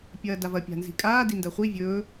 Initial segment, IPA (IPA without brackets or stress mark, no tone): pʲ